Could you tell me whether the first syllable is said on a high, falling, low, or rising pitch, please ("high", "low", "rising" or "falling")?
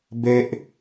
high